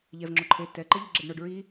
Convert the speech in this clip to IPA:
ʎɛvŋ͡ǁo ǃʰe tɛ ǃeʎɘɡ͡ǁɛɖɳoɖ ɹi

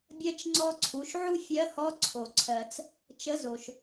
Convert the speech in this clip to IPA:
bʲɜ˥t͡ʃŋ͡ǀɔ˥ǀʰu˩˧ʃ ʕu˥fʲɜ˧˥hɔ˧˥ ǀʰo˩ǀʰɜ˩t͡s | t͡ʃə˧˥zo˩ʃ

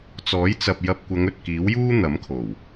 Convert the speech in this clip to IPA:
t͡sɔː˨˥jt͡sɐ˨p̚ jɐ˧p̚kʷɐ˨˧ŋ ɵ˨t̚kiː˨˥wjuː˥ n̪ɐ˨˥mkʰo˨˩w

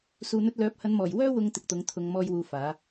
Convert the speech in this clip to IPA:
suː˨n̪ɵ˧t̚lœː˨˥p̚ hɐ˨˧nmɔː˨˩jwœː˥ wʊ˧ŋ t̪ɪ˨k̚t̪ʊ˨˥ŋ t̪ʰʊ˨˧ŋ mɔː˧jwuː˨ faː˨˥

